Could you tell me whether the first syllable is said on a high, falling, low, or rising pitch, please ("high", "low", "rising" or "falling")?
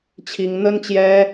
high